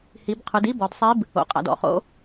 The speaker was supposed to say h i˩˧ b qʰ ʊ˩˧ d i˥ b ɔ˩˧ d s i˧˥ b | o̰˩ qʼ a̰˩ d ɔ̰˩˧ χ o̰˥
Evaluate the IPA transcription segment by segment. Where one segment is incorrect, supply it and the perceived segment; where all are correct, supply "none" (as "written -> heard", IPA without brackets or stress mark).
s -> sˤ